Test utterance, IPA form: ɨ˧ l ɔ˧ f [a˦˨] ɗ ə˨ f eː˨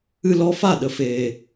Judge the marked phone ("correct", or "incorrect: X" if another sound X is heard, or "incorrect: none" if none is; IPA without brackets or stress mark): correct